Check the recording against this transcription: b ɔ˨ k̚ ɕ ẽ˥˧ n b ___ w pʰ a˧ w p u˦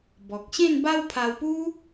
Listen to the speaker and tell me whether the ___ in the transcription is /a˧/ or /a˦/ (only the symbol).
a˦